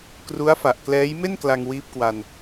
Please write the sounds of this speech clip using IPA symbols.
kru˦˥a̯fa˨˩ʔ klɛː˦˥jme˥˩n kla˧ŋwiː˦˥p̚kwa˧n

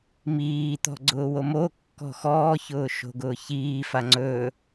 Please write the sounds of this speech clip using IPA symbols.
miː t̪ɔ̤ɡ͡ǀʊːwomo kːɔ̤xɔːçʊː ʃo̤ɡʊːçiː faŋ͡ǀɵː

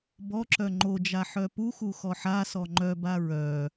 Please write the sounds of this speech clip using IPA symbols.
bɔǁœ ŋ͡ǃod͡ʒa ħœpuxu xɔħasɔ ŋ͡ǃœba ɹœ

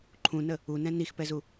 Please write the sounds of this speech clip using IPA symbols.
ǃʰũnə | unɛ̃ nixpɛzu

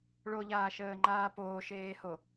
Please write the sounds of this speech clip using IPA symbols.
ɭoʎaːʃəːŋ͡ǃaː poːʃeːho

